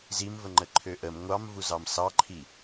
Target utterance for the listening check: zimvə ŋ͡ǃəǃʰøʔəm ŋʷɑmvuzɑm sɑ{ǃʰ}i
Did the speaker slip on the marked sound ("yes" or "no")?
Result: no